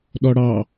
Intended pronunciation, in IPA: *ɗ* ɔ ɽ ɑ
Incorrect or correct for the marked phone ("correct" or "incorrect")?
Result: correct